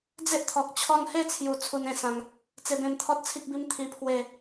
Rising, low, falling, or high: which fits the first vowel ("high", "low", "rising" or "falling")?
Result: high